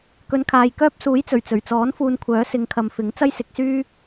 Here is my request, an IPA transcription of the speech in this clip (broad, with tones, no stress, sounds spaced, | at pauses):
k ɵ˨˧ n kʰ aː˨ j k œː˥ p̚ s uː˨˥ j t͡s ɵ˨˩ ɥ t͡s ɵ˨˩ ɥ t͡s ɔː˨˥ n f uː˧ n kʷʰ œː˨˥ s ɪ˨˧ ŋ kʰ ɐ˨ m f ɪ˨˥ ŋ t͡s ɐ˥ j s ɪ˨˥ k̚ s yː˥